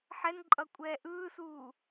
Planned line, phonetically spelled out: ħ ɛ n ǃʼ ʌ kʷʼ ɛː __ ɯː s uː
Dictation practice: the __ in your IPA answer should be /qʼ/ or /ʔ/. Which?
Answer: ʔ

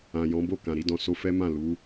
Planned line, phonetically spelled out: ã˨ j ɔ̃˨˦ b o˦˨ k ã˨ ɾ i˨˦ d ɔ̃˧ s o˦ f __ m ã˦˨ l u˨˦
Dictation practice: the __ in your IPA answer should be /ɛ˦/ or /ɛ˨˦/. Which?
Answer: ɛ˦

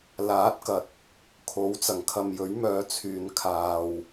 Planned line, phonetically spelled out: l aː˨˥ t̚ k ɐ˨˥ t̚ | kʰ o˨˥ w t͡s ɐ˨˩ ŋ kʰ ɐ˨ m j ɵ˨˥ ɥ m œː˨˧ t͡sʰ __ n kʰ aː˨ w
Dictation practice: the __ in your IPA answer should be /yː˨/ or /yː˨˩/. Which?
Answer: yː˨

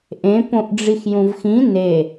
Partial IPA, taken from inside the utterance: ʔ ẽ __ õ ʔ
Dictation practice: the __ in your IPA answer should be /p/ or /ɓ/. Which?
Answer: p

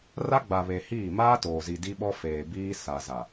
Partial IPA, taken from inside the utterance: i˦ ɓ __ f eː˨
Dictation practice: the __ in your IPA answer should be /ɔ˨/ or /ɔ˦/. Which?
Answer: ɔ˦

